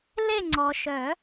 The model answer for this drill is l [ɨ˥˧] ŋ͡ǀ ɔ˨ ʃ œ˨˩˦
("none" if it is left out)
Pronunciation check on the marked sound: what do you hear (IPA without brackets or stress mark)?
e˥˧